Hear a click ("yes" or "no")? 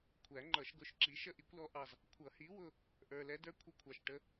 yes